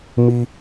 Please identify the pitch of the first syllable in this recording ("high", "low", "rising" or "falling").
high